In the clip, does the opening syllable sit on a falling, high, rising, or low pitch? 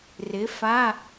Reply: rising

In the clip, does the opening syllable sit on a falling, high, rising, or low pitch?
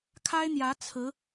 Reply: high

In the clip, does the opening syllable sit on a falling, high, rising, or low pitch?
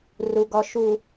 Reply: low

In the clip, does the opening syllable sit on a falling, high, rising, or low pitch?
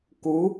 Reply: rising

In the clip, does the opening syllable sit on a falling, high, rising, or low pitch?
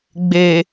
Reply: low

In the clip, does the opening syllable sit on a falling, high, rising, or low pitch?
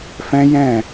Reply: high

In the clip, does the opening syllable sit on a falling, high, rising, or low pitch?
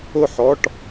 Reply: falling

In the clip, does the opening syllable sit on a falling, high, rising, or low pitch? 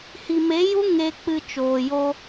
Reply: low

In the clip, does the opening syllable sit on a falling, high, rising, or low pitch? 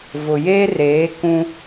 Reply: low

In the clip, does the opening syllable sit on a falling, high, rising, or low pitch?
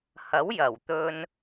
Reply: rising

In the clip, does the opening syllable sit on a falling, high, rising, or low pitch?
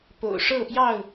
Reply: low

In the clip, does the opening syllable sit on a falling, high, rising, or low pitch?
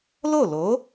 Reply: falling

